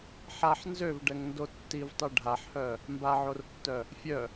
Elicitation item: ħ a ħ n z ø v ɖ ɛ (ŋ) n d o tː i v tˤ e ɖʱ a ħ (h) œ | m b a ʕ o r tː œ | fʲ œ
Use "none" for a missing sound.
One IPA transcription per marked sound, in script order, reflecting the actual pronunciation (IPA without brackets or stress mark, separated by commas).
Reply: ŋ, h